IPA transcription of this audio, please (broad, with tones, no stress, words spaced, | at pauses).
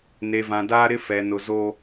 ne˨vã˨daː˦ ɾɪ˦ fɛ˨nʊ˨ zo˦